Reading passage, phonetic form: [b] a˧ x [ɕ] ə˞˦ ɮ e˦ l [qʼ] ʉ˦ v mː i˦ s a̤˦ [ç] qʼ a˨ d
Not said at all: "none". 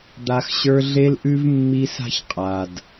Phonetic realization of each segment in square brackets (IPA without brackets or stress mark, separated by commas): d̪, ɕ, ʔ, ç